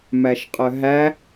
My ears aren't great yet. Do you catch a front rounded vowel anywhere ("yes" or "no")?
yes